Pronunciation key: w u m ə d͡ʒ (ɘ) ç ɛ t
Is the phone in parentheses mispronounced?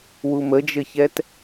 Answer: no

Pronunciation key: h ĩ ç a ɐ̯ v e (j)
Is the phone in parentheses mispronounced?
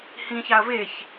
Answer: yes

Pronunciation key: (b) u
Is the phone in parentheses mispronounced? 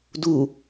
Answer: yes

